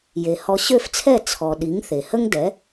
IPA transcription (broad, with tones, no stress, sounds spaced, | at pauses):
j e˩ h ɔ˧ ɕ ø˥˩ f t͡sʰ ɛ˥˩ t͡sʰ ɔ˩ ɗ i˩˥ ŋ θ e˩ h ə˥ ŋ d ɛ˩˥